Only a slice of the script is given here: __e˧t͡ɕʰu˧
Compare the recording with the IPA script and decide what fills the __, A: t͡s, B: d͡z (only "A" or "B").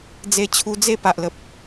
B